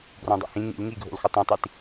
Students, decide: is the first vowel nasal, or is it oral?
nasal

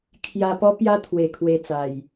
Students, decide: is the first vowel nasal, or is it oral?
oral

